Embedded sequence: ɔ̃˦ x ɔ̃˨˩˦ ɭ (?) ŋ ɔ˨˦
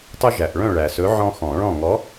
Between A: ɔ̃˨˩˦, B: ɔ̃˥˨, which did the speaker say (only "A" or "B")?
B